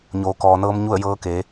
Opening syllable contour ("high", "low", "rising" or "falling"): low